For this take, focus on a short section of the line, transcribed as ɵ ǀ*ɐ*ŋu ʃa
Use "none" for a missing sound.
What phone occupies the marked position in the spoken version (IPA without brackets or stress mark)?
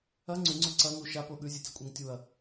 ɐ